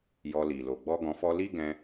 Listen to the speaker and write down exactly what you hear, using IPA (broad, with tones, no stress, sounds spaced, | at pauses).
j ɔ˧ l i˨ l o˨ ɡ͡b ɔ˧ ɡ ɔ̃˧ f ɔ˦ l i˦ ɡ ɛ̃˧